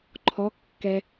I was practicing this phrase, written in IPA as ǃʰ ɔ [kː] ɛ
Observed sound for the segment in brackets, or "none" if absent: kː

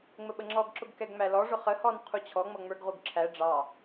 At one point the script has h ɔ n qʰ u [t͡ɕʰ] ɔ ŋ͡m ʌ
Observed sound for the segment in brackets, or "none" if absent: t͡ɕʰ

